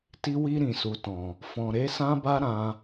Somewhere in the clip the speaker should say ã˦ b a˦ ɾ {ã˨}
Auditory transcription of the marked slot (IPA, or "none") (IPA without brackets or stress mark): ã˧